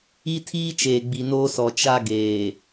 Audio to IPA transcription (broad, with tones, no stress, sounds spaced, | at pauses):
i˦ tʰ iː˦ t͡ʃ eː˨ ɡ͡b i˨ n oː˦ s ɔ˨ t͡ʃ a˦ ɡ eː˨